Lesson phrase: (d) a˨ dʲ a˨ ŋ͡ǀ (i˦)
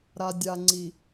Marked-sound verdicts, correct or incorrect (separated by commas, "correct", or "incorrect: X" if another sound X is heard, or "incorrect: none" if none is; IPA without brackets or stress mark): incorrect: ɾ, incorrect: i˨